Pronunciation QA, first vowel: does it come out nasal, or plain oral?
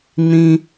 nasal